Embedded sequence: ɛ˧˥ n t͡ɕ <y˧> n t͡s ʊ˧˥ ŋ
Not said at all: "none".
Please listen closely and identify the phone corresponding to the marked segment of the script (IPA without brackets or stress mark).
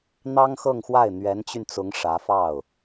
y˧